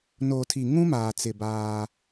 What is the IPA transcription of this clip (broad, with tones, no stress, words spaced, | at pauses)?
no˨tʰi˨ŋũ˦maː˨ t͡sɪ˨baː˦